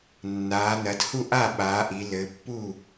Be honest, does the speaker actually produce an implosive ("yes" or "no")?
yes